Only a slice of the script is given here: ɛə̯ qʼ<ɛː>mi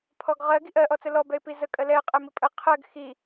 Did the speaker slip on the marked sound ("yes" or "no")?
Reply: yes